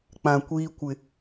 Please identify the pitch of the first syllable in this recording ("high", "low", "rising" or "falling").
low